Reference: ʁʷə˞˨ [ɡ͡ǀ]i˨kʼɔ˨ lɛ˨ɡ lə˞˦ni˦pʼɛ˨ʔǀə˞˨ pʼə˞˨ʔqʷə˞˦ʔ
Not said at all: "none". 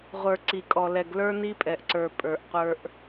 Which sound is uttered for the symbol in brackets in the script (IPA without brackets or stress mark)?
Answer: ǀ